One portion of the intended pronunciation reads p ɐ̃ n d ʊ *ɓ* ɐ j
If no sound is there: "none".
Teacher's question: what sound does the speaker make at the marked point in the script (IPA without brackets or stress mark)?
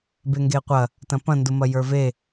m